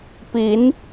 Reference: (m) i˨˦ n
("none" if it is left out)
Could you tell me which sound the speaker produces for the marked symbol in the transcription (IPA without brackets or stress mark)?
p